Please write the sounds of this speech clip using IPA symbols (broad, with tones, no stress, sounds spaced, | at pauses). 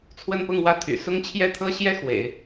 t͡sʰ w ə˥˧ n p ʊ˥˧ ŋ w ä˥˩ t̪ʰ y̰˨˩ s ʊ˥ ŋ t͡ɕʰ j ɛ˥ t̪ʰ ɤ˥ ɕ j ɛ˥ x w ḛ˨˩˦ ɪ̯